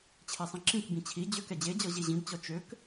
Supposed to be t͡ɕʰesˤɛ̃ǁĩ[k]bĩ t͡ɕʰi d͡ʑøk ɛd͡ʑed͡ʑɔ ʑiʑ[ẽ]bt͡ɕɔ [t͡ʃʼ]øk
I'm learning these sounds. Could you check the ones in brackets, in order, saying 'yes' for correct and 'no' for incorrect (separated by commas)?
yes, no, no